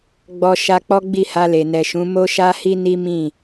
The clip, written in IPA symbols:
ɡ͡b ɔ˧ ʃ a˧ k͡p ɔ˦ ɡ͡b i˦˨ h a˧ l e˨ n ɛ˨ ʃ ũ˨˦ m o˦ ʃ a˦ h i˦ n i˦ m ĩ˦˨

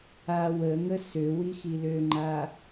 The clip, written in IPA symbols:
a w ə ŋ ə s ø w i x i l ø ŋ͡ǃ a

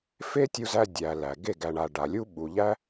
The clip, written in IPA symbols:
f e˦ tʲ u˧ z æ˧ dʲ æ˨ l æ˨ ɡ e˦˨ ɡ æ˨ ɳ a˨ ɖ a˨ lʲ u˦ ɓ u˨ ʎ æ˦

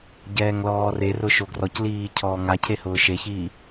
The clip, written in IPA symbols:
ɟ ɛː ŋ l ɔː r e r ʊ ʃ o ɡ r ɔ c l iː cʰ ɔː ŋ a cʰ e h ʊː ʃ e ç iː

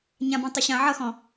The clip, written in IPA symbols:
ɲ ã b ɔ̃ tˤ ɵ ɕ ã ʕ ʌ x ɔ̃

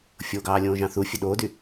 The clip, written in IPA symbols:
fʲ o ɡ ɑː lʲ õː ʒ ɑ̃ θ u fʲ ø ɗ oː d y

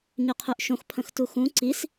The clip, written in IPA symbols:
ɲ œ qʰ œ ʔ ʃ õ x pʰ ə̃ x t u x ũ ǀ i s

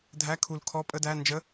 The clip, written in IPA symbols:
dʱ æ˧˥˧ kʰ u˧˩ l kʰ ɔ˧˥˧ pʼ ə˧˥˧ d æ˧˥˧ n d͡ʒ ə˧˥˧

